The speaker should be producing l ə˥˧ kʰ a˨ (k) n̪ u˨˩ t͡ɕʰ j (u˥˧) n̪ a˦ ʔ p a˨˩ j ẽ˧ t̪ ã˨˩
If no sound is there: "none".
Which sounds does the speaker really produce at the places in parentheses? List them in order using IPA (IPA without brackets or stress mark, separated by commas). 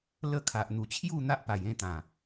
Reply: ʔ, u˥˧